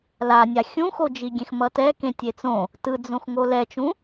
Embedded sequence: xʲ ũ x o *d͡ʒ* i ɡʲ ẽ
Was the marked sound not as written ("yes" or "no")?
no